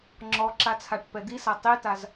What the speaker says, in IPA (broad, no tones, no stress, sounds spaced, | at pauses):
ŋ͡ǁ ɔ ǁ a t͡sʰ a ʈ p ɛ d̪ i s a tˤ i t a z